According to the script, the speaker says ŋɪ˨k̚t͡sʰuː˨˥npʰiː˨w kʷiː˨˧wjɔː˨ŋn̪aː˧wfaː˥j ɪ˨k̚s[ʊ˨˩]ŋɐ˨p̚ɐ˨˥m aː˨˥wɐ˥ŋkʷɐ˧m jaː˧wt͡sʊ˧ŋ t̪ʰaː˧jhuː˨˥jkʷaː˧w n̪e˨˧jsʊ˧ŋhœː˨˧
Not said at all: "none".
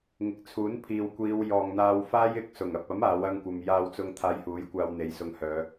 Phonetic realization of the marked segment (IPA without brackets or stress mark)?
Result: ʊ˨˩